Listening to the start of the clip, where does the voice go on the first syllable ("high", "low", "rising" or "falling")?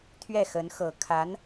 falling